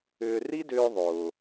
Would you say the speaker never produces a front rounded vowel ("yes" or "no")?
no